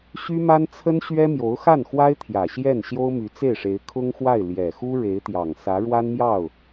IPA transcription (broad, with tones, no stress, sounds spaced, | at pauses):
ɕ y˥ m a˥ n t͡sʰ ə˥ n ɕ ɥ ɛ˥ m j o˧˥ ʊ̯ x a˥˩ n x w a˥ ɪ̯ t̪ʰ j ä˨˩ ɕ j ɛ˥˩ n ɕ j o˥ ʊ̯ m y˧˥ t͡s e˥˩ ɪ̯ ʂ e˧˥ ɪ̯ kʰ ʊ˥ ŋ x w a˥˩ ɪ̯ l j ɛ˨˩ x u˥ ɻ e˧˥ ɪ̯ t̪ j ɑ˨˩ ŋ s ä˧˥ ɻ w a˥ n m j ɑ˥˩ ʊ̯